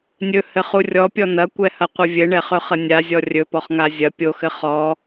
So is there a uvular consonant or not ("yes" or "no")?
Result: yes